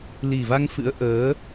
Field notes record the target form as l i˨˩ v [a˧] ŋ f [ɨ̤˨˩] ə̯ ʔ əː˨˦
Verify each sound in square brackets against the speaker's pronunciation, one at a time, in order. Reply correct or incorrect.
correct, incorrect: ɨ̰˧˥

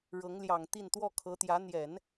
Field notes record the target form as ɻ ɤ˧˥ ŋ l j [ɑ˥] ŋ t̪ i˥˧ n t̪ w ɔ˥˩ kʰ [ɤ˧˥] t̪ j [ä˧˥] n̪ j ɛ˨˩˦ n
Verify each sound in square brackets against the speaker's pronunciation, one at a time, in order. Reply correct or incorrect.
incorrect: ɑ˨˩, correct, correct

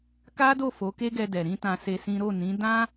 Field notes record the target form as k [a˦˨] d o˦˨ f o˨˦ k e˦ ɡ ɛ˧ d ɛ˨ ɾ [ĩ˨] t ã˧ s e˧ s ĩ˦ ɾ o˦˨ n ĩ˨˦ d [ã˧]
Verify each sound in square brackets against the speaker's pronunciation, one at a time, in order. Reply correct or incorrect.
incorrect: a˦, incorrect: ĩ˧, incorrect: ã˦

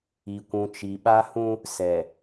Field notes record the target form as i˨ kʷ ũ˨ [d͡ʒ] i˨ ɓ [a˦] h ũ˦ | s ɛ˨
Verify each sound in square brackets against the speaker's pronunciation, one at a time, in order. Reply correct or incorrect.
incorrect: t͡ʃ, correct

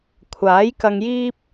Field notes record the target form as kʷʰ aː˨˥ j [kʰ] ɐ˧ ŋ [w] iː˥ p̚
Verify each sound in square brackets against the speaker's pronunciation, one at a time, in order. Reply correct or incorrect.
incorrect: k, incorrect: j

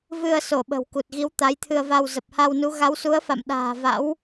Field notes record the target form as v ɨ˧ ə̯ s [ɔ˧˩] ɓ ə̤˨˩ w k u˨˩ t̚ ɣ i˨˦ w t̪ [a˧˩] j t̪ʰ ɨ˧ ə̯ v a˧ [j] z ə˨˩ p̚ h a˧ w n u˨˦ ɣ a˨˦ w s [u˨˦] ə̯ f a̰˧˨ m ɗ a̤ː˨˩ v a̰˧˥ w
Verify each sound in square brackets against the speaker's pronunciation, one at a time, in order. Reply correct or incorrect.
incorrect: o˧˩, incorrect: a˨˦, incorrect: w, correct

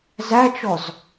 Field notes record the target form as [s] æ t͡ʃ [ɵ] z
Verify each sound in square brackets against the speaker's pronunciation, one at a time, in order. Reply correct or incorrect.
incorrect: z, incorrect: ɔ

